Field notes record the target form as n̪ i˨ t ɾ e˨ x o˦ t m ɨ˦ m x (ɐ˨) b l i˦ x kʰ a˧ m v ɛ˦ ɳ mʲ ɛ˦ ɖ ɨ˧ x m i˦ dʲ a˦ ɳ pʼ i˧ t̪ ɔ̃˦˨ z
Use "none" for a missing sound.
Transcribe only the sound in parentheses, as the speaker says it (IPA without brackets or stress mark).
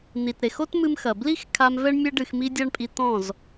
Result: ɐ˨